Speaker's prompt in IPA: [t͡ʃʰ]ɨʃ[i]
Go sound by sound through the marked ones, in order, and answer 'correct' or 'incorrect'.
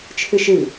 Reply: correct, incorrect

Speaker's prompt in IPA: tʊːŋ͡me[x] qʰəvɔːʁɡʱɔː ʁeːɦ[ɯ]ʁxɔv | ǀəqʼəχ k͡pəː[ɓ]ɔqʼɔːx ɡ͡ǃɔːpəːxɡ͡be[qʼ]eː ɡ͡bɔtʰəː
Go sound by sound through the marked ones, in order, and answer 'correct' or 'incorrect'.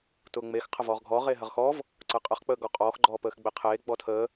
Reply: correct, incorrect, incorrect, incorrect

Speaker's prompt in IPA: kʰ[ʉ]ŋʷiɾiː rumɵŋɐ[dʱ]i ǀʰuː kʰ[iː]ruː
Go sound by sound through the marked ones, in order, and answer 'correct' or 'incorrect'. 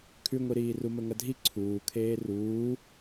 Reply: correct, correct, incorrect

